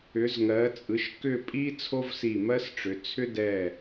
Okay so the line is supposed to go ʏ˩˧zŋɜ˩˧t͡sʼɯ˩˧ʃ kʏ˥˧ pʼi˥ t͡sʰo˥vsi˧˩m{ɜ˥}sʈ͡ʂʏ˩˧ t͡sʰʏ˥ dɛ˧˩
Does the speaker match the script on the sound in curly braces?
yes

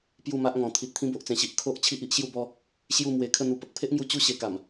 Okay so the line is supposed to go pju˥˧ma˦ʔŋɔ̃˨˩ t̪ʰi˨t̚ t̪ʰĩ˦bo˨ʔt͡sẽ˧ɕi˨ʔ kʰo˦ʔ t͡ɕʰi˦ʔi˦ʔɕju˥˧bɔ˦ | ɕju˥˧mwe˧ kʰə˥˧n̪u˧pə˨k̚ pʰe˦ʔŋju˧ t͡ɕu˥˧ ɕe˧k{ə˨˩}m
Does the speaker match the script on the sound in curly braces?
no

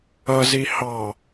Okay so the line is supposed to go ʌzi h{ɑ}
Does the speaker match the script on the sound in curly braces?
yes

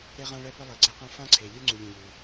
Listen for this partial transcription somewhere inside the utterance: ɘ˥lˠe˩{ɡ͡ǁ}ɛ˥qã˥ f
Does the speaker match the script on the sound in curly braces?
no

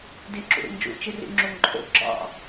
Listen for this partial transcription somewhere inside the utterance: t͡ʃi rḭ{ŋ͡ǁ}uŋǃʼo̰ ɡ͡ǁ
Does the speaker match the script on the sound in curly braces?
yes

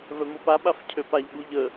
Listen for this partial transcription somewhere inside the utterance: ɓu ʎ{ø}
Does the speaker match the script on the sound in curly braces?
no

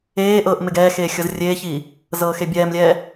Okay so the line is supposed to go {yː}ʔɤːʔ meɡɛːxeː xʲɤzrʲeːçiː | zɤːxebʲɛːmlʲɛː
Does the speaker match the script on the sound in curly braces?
no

